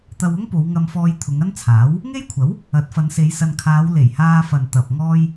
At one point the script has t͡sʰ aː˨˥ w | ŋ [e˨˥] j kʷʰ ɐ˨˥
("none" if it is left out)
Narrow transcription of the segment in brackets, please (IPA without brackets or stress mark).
e˥